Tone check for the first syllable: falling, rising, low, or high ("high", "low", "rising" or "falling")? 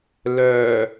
low